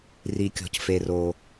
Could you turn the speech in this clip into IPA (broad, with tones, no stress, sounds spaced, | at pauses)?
r i˧ kʲ ɔ̤˧ c f e˧ r o˧